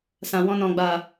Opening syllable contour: low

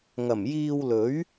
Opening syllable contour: low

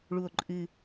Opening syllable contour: low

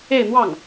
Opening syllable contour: falling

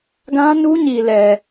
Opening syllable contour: high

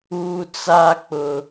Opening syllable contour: high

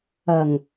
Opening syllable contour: low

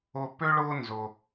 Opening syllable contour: high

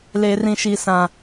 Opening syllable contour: low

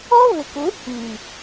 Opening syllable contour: high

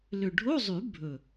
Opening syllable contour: low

